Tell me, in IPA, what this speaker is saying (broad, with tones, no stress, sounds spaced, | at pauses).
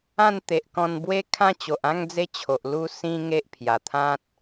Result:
ã˥˧ n t̪ e˨ ʔ k ɔ̃˧ n b w e˦ kʰ ã˦ t͡ɕ o˨ ʔ ã˥˧ ŋ d͡z e˦ t͡ɕʰ o˨ ʔ l u˧ s ĩ˧ ŋ e˦ ʔ pʰ j a˨˩ t̪ʰ ã˦ t̚